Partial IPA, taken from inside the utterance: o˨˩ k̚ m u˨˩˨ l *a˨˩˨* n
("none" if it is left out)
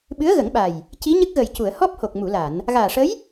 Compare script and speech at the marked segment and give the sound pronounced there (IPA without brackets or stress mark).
a˨˩˨